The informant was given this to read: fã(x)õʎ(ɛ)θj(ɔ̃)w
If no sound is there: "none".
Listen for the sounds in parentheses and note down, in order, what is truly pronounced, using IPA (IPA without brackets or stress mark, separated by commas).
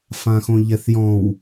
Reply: x, ɛ, ɔ̃